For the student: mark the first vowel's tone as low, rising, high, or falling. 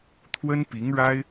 high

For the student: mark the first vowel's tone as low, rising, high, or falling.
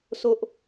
high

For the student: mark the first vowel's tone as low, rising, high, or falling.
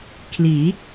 rising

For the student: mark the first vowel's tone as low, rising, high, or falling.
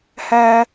high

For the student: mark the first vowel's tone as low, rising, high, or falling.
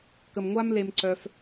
low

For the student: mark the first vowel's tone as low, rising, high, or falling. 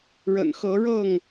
low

